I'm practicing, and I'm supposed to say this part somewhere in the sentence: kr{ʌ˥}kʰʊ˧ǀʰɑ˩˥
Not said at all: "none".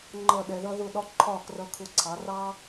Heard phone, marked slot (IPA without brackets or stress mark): ʌ˧